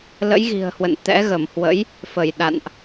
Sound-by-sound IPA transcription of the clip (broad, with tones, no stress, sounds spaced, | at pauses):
l ə̰˧˥ j ɣ i̤˨˩ ə̯ h w ə̰˧˨ n t̪ ɛ̰˧˥ ɣ ə˧˩ m h w ə̰˧˥ j | f ə˧˩ j ɗ a̰˧˨ n ʔ